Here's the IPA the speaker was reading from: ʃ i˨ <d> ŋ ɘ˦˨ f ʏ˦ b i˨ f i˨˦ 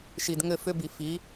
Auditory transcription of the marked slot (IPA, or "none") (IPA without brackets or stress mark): d